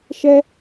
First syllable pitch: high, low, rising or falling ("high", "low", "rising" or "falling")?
high